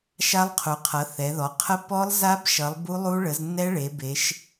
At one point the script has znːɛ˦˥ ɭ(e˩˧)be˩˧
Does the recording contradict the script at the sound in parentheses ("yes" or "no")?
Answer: no